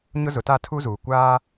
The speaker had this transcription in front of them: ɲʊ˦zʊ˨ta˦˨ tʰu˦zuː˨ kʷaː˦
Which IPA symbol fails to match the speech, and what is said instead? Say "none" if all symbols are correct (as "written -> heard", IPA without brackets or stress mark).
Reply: none